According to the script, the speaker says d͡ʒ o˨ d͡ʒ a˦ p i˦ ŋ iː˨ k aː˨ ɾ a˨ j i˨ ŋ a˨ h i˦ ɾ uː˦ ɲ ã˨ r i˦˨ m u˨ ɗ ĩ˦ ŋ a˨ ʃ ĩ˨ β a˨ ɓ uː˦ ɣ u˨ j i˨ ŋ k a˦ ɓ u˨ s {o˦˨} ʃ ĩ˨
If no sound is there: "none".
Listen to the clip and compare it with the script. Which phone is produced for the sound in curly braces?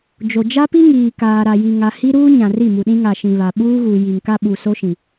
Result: o˦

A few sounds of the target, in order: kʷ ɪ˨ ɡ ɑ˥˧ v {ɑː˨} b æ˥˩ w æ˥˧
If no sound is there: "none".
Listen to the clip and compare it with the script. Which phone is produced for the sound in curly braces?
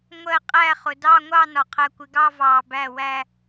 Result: ɑː˨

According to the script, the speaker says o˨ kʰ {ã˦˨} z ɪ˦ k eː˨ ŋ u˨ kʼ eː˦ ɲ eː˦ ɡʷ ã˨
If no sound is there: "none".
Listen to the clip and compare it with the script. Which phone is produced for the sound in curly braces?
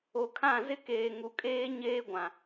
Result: ã˦˨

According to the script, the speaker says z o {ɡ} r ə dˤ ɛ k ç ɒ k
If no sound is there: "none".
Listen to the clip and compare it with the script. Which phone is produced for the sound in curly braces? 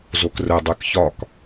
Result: k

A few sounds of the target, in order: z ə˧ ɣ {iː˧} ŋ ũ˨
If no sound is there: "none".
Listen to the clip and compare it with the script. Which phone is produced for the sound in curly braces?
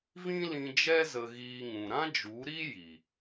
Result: iː˧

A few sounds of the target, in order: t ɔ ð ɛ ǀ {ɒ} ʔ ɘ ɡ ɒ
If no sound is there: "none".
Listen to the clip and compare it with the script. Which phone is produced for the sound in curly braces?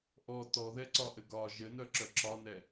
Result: ɒ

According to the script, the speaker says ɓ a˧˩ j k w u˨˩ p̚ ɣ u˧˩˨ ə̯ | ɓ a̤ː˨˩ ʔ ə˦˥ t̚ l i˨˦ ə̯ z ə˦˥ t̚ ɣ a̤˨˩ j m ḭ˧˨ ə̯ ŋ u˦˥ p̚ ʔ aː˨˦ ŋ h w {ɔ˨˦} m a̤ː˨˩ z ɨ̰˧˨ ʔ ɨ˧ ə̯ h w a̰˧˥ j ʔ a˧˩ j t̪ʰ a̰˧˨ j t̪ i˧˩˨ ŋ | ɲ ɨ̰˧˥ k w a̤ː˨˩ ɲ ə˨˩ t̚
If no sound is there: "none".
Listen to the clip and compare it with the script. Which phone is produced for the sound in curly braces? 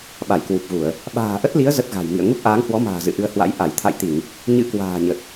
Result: ɔ˨˦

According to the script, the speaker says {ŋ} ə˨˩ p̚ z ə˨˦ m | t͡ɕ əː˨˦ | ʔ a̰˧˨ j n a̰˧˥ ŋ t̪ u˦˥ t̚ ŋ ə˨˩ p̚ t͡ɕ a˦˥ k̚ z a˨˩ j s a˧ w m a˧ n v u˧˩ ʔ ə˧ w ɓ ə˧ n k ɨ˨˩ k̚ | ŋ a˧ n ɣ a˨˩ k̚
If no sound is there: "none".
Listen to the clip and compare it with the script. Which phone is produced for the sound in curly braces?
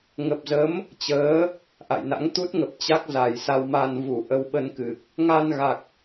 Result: ŋ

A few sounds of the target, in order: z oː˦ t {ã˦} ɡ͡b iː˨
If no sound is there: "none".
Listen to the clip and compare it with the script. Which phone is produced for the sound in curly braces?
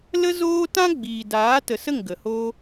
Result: ã˦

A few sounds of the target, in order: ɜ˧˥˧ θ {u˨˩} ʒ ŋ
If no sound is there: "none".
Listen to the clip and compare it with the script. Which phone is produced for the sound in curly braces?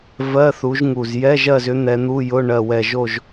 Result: u˨˦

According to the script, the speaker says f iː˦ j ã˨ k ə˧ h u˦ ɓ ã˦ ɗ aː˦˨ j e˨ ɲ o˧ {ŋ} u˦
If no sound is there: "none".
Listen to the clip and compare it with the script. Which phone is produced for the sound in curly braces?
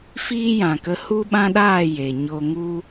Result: ŋ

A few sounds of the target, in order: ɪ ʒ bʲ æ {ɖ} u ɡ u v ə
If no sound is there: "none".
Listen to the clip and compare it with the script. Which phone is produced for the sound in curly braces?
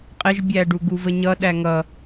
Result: ɖ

